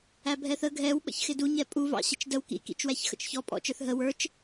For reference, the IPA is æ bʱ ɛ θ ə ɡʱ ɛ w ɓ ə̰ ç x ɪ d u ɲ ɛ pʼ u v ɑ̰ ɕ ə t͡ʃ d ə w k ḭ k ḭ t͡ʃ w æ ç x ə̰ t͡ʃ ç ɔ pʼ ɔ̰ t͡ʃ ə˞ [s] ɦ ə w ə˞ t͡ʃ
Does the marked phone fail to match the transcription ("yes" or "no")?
yes